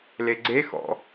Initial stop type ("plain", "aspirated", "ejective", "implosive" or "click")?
click